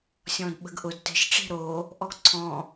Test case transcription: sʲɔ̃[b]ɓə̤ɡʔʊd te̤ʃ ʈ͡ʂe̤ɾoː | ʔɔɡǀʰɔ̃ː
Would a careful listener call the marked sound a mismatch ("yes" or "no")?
yes